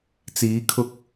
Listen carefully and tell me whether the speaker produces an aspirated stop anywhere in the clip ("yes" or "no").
yes